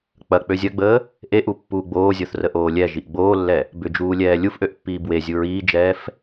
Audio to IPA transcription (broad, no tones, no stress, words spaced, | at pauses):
k͡pɐk͡pø zʲɐɡ͡bəː | ʔeʔu pːuːɡ͡boːzʲoθrə ʔoːlʲɛ ʒiʔɡ͡boːlːɛ | bʏd͡ʒuːlʲɛː lʲufʔøʔpːiː bwezʲu ɹiːd͡ʒɛːf